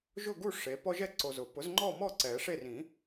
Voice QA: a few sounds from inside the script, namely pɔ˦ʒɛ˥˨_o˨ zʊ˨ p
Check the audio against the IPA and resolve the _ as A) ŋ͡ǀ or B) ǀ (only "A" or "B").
B